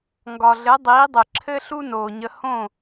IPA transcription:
ŋ ɡ ɒ˩ ɮ ɘ˩˥ dˤ iː˩˥ dˤ ɘ˩ ǁʰ ɘ˥ ɬ u˥ n oː˩ ɲ ə˧ h õ˥˩

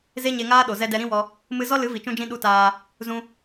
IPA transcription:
z e˦ ɲ e˧ ŋ aː˦ ɗ o˨ z ɛ˧ d ɛ˧ ɾ ĩ˦ w ɔ˧ | m ɨ˧ z ɔ˦ l ɨ˨˦ v i˨ t͡ʃ ũ˧ d͡ʒ ĩ˧ ɗ u˧ t aː˧ | z ũ˧

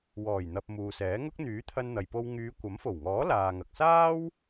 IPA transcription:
w ɔː˨˩ j n̪ ɐ˨ p̚ m uː˨ s ɛː˨˥ ŋ ʊ˥ k̚ n̪ yː˨˥ t̪ʰ ɐ˧ n n̪ ɐ˨ j p o˧ w ŋ yː˨˧ kʷ ɐ˨˥ m f o˨˩ w ŋ ɔː˨˥ l aː˨ ŋ ɐ˨ k̚ s aː˥ w

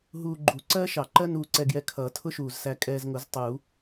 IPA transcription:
ɦ uː˧ ɡ͡ǃ u˨˩˦ ǀ ɜː˥ ʃ ɑ˨˩˦ ǃ ɜ˥ n uː˧ ǀ ɛ˧ ɡ j ɛ˧ kʰ ʌː˨˩˦ tʰ ʊ˥ ʃ uː˨˩ z s æ˧ kʼ ɛː˧ z ŋ ʊ˨˩˦ z tˤ uː˨˩˦

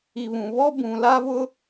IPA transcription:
i˨ β ũ˨ β ɔ˦ b ũ˨ l a˦ v ʊ˦

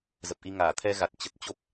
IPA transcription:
z ə˨˩ p̚ ʔ i˧ ŋ aː˧˩ t̪ʰ ɛ˧ ɣ a˨˩ t̚ t͡ɕ ə˨˩ t̚ t͡ɕ o˦˥ p̚

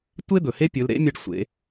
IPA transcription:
tʷ e˥ d̪ ɵ˩ h e˥ pʲ ɵ˩˧ l ɾ ḛ˧˥ mʲ ɐ˧ ɖ sʷ ḛ˩˧

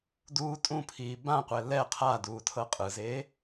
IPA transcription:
d uː tʼ ũ pʰ iː b ã qʷ ɛ l ɛ qʰ a d uː tʰ ɤ qʼ ɯ z eː

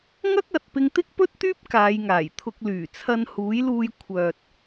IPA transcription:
ŋ ɐ˥ k̚ ɐ˨ t̚ p ɪ˧ ŋ t̪ ɪ˥ k̚ p ɵ˥ t̚ t̪ yː˥ p̚ k aː˨˧ j ŋ aː˨˩ j t̪ʰ ʊ˧ k̚ l yː˨˩ t͡sʰ ɐ˧ n h uː˨˥ j l uː˧ j kʷʰ œː˨ t̚

